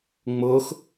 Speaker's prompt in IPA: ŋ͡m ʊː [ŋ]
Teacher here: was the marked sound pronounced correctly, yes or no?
no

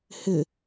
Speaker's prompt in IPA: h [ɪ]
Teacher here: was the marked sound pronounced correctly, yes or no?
yes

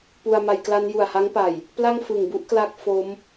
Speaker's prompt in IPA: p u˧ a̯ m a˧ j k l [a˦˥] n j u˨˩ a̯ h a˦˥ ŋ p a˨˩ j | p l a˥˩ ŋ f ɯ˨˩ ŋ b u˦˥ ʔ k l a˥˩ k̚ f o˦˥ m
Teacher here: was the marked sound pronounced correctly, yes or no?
yes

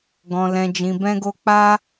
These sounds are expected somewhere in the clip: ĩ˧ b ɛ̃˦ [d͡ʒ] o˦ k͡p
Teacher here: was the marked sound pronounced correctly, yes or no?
no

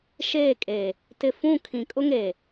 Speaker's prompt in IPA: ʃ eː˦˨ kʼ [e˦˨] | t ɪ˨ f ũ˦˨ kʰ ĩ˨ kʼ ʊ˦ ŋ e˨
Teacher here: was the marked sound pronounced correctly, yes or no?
no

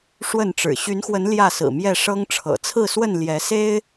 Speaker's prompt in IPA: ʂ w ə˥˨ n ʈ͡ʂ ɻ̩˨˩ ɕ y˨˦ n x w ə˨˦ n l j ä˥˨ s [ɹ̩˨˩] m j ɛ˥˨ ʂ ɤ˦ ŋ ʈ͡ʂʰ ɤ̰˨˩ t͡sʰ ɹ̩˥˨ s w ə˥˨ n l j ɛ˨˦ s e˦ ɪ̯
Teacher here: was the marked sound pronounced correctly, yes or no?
yes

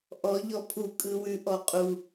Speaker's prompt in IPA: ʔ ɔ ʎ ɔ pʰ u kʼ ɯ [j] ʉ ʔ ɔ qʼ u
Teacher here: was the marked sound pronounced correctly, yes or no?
no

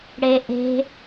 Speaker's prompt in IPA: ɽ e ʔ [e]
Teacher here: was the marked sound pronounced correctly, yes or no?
no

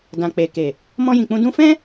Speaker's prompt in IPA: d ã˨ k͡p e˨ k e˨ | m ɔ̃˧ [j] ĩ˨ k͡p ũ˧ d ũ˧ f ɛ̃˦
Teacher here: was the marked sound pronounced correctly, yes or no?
yes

